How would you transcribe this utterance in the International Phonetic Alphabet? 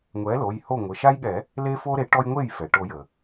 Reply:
ŋʷ ɛ˩˥ l o˩˧˩ j h o˥˩ ŋʷ ɘ˩˧˩ ʃ a˦ j ɠ ɛ˨˩˦ | l e˦ f o˦ ɾ e˩˥ ʈ ɔ˦ j ŋʷ e˥˩ j f ɛ˩ ʈ o˨˩˦ j ə˩

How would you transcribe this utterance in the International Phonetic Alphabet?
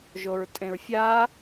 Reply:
ʒ o ɹ tʼ ẽ ɹ fʲ a

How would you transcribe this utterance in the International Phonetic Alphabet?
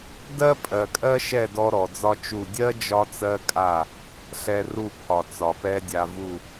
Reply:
d ɜ˥ pʼ ɜ˩ kʼ ɜ˥ ʃ ɛ˥˩ d ɔ˧ ɾ ɔ˩ d͡z ɒ˥ t͡ʃ u˥˩ dʲ ɜ˥ d͡ʒ ɒ˥ t͡s ɜ˥ kʼ a˥˩ | ɬ ɛ˧ r u˥˩ pʰ ɒ˩ t͡s ɒ˩ p ɛ˥ dʲ a˧ v u˥˩

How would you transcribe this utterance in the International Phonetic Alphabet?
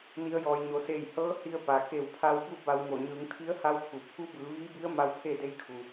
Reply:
n i˩˧ ə̯ j ɔː˩ j ɲ o˩ s eː˧˩ j h ɤː˧˥ h i˧ ə̯ p a˩ k e˧˩ w pʰ a˧ w b u˥˨ b a˧ w ŋ o˧˩ ɲ ɯː˩˧ ŋ t̪ʰ i˧˥ ə̯ h a˧˥ w pʰ u˩ pʰ u˧˥ b ɯː˩˧ ʋ iː˧˥ b i˧˥ ə̯ m a˧˥ w pʰ e˥˨ d e˧˥ j kʰ u˩

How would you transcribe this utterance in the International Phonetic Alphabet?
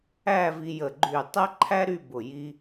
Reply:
æ˥˧ v i˧ j ə˧˩ ɡ͡ǃ y˧˩ tˤ æ˥ ǃʰ æ˥ ɾ y˥˧ b ʊ˧˩ j i˧

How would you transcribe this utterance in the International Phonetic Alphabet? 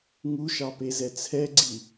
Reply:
ŋ u ʃ ɑ p e z ɛ t͡sʰ ɛ ɡ͡ǀ i

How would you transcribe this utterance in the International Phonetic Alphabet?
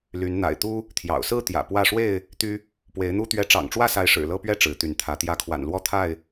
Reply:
l y˨˦ n n̪ a̰˨˩ ɪ̯ t̪ u˦ | t̪ʰ j ɑ̰˨˩ ʊ̯ s ɹ̩˥˨ t̪ j ä̰˨˩ p w ä˥˨ ʂ w e˥˨ ɪ̯ | t̪ y˦ | p w e˨˦ ɪ̯ n̪ u˦ t̪ ɥ ɛ˨˦ ʈ͡ʂ ɑ̰˨˩ ŋ ʈ͡ʂ w ä˥˨ s a˨˦ ɪ̯ ʂ ɻ̩˨˩ l ɤ˦ p ɥ ɛ˥˨ ʈ͡ʂ ɻ̩˨˦ t̪ y˨˦ n t̪ʰ ä˨˦ t̪ j ä˨˦ kʰ w a̰˨˩ n l w ɔ˥˨ t̪ʰ a˥˨ ɪ̯

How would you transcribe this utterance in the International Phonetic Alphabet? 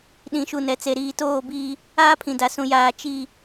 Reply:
ɗ ĩ˨ ʃ u˨ n ɛ˨ t͡s e˨ ɾ iː˨ t oː˦˨ b iː˦ | aː˦ pʰ ĩ˨ d a˨ s ũ˨ j aː˨ t͡ʃ i˨

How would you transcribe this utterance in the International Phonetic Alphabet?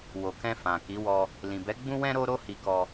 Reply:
w o˨ k ɛ̃˧ f ã˨ k i˨˦ w ɔ˧ | l ĩ˨ b ɛ˨˦ ɡ͡b ũ˦ w ɛ̃˦ ɾ o˦ ɾ o˦ h i˧ k ɔ˧

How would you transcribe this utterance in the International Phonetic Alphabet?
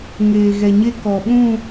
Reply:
ŋ eː˨ ɣ ɛ˨ ɲ e˦ k ɔ˨ ɓ ũ˦˨

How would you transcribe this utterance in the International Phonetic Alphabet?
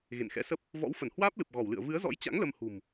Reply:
ɣ ḛ˧˨ n x ɛ̰˧˥ s ə˦˥ p̚ | v ɔ̰˧˥ w f ə˧˩ n h w aː˦˥ p̚ l ɨ˨˩ p̚ ɣ ɔ˧˩ w l ɨ̰˧˨ ə̯ v ɨ˨˦ ə̯ z ɔ̰˧˥ j t͡ɕ a̰˧˥ ŋ l ə˧ m h ṳ˨˩ m

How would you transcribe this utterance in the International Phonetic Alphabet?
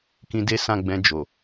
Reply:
k ĩ˧ d e˦ s ã˦˨ ɡ͡b ɛ̃˧ d͡ʒ o˨

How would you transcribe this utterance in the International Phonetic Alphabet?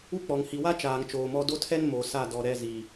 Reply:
u˦ k͡p ɔ˨ ŋ h i˨ w a˦ t͡ʃ aː˨ ŋ t͡ʃ oː˨ m ɔ˦ d o˦ tʰ ɛ˦ n m o˨ s a˦˨ d ɔ˨ ɾ ɛ˦˨ z i˨

